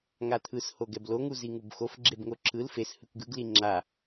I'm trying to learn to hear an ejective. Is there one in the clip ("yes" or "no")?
no